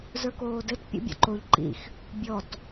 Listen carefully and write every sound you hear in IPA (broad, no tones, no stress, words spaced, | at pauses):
zə˞koːdɘt pʲo̰bʲɔ̰ǃoʎ ǃḭx | bʲɔt